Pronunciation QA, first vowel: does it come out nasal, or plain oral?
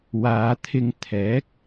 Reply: oral